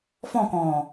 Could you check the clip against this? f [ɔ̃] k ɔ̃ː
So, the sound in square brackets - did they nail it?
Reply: yes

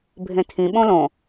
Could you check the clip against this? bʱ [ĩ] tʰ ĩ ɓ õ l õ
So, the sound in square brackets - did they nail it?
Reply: no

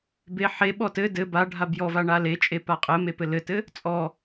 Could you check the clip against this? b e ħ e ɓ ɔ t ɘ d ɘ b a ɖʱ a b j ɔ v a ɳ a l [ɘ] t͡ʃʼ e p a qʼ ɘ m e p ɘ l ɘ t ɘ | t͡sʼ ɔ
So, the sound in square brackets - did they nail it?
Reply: no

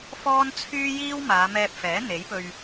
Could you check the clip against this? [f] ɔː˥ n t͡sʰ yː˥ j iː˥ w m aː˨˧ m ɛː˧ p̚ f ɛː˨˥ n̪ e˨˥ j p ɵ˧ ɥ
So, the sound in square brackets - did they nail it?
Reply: yes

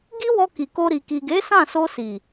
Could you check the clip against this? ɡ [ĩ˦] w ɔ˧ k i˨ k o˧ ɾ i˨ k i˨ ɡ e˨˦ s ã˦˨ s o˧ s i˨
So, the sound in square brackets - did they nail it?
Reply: no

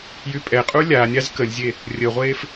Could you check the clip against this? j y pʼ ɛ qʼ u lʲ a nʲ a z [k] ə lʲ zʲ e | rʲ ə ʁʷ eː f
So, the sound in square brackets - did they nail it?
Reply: yes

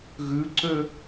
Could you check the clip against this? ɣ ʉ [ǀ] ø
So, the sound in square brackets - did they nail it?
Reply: yes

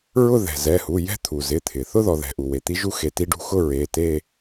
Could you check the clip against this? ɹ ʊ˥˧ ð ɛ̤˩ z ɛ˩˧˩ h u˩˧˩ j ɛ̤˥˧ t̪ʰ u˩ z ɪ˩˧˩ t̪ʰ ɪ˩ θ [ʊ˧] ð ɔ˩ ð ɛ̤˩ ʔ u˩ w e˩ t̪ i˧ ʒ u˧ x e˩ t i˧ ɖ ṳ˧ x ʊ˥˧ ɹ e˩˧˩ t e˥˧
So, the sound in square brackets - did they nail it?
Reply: no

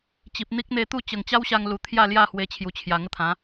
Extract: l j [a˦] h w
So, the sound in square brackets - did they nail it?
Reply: no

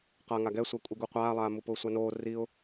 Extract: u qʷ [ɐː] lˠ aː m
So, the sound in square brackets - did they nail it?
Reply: no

